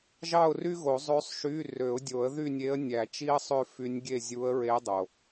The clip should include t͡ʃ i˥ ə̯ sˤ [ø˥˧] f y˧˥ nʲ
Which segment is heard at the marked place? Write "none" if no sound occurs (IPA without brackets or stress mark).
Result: ø˥˧